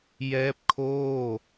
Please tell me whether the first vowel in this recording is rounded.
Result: no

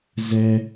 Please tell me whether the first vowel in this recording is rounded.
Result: no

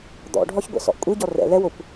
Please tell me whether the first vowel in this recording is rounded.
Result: yes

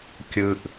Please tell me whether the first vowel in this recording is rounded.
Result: no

